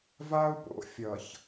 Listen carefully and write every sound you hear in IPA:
va˦u̯po̰˨ fʲʌ˨ç

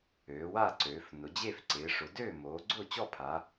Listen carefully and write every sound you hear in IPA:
øː˩˧wa˥˨ǀøː˩˧f nʊ˩˧d͡ʑe˥˨fǀɪː˩˧ ʂʊ˩˧døː˥˨moː˩˧ɡ͡ǀʊː˥˨ t͡ɕɔ˥˨pʰa˩˧

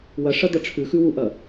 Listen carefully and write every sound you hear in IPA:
wɐʂɐd̪ɐ ʈ͡ʂʰʉxʉwuʔɐ

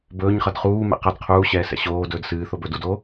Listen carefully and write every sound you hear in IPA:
bɵːɲχʌd χuːmɛ̰ qʌd qʰuːɕɛːsɛ̰ ɕoːdɵːd sɨːθob ɵ dudoː

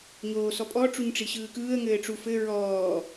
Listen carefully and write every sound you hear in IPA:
ɲoːsɔpʼɔ ʈ͡ʂuɲʈ͡ʂiɕɯːkɯːə̯ ŋɘːʈ͡ʂuf ɘ ɹɔː

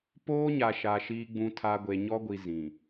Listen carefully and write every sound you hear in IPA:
poː˦ɲa˨ʃa˨ ʃiː˦ɡ͡bũ˦tʰa˦ ɡʷe˨ɲɔ˦ɡʷi˨ zĩ˨

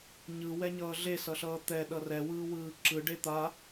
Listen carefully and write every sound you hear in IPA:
ɲɯwɛɲʌː ɮesʌɬʌː t̪ɛɗʌ rɛwɯːwɯː ǁɯɖe t̪a

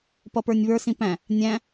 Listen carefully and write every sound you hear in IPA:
pʌpə˞nʲβə˞s ĩpæ̃ | nʲæ̃

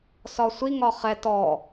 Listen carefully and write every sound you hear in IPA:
sɒsʷi ŋɒχɛ tɔ

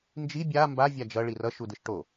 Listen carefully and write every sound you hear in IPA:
nd͡ʒi bʲa mba vʲad͡ʒʌ ɭirʌʃ udɯʃʈo

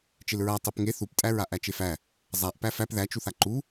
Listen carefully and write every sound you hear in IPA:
t͡ʃelɹa tˤepŋe θuptʼæ ɹaʔæt͡ʃefæ | zˤaʔ pæfæp ðæt͡ʃuθa ǃu

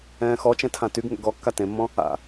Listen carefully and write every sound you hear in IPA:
ɛ̃ːxɔt͡ʃɛ̃ tʰãtyɡ ŋɛ̰ɡɔkːa tẽmːɔ̃ | a̰

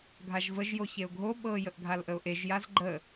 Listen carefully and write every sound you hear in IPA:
ɡʱaʒvəʒ joçeʊ̯ɡʱo ɓɤ jəʔɡʱalʔəʊ̯ʔeʒ jazɡ͡ǃə

